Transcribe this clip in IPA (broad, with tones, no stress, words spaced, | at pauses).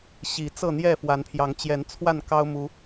ɕi˨˦ t͡sɤ˥˨ n̪jɛ˥˨ fwa˨˦npʰjɑ˨˦ŋ t͡ɕjɛ˨˦nt͡sʰwa˥˨n kɑ˦ʊ̯mu˨˦